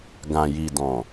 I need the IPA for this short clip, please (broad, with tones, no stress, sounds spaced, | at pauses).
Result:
ɡ ã˨ j i˨ d ɔ̃˨